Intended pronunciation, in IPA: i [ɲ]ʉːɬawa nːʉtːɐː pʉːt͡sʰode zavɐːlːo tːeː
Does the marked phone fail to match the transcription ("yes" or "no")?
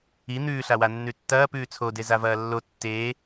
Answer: yes